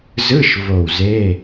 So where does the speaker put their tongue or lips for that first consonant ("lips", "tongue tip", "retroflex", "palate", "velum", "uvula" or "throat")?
tongue tip